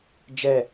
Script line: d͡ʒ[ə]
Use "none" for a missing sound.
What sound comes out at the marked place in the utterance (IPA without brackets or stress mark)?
ɛ